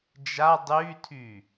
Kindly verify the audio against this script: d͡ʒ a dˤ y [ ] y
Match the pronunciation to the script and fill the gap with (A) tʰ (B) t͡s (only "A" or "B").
A